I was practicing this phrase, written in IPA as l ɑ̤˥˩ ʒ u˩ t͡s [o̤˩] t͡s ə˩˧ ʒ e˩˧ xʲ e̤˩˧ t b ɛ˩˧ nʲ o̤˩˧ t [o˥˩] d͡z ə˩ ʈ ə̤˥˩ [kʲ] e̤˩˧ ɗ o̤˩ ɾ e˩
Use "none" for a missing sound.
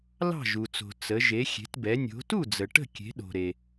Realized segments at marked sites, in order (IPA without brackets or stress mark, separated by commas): o̤˩, u˥˩, kʲ